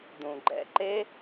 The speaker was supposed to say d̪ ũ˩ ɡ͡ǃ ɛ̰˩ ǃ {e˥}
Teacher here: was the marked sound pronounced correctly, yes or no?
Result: yes